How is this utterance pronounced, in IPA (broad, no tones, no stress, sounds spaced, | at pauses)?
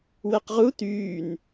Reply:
w ɛ q ʁ u t yː n